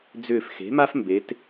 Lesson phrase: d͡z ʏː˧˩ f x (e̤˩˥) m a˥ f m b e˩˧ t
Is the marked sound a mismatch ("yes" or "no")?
no